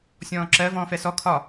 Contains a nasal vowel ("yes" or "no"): yes